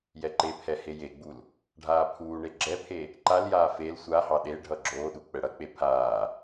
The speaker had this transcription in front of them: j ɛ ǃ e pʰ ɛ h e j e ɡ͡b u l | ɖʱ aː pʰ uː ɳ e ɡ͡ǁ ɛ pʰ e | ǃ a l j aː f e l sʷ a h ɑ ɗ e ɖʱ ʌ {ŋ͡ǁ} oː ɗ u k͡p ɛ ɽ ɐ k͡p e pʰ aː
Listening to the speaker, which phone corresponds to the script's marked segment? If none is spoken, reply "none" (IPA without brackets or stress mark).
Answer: ɡ͡ǁ